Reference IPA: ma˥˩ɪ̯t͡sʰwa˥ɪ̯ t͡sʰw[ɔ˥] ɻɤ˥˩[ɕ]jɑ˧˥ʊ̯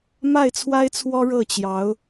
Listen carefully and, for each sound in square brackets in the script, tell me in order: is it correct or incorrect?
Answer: correct, incorrect: t͡ɕ

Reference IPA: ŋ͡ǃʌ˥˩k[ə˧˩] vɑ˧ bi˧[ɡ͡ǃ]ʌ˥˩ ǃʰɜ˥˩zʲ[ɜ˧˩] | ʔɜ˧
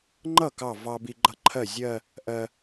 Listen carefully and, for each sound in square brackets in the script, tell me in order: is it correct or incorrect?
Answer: incorrect: ɑ˧˩, correct, incorrect: ɜ˥˧

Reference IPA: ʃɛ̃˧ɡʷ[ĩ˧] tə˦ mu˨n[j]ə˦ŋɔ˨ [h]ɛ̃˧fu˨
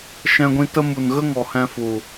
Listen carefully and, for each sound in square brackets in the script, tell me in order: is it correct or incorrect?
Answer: correct, incorrect: ɣ, correct

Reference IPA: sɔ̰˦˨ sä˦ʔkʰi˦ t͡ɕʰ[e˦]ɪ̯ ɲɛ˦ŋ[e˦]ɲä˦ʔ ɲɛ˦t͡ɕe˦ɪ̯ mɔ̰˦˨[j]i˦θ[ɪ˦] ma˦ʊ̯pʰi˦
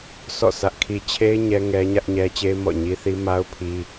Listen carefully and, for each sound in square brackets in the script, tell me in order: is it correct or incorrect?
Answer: correct, incorrect: ɛ˦, incorrect: ɲ, incorrect: i˦

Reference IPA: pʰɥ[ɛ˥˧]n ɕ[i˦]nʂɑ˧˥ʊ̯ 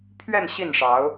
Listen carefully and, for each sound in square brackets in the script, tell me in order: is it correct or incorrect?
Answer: correct, incorrect: i˥˩

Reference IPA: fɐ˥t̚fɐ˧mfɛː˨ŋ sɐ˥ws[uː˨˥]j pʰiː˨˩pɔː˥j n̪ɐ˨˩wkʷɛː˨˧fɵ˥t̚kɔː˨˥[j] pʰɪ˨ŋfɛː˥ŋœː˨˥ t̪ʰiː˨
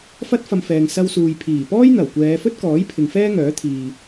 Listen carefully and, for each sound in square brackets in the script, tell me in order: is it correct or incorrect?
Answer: incorrect: uː˧, correct

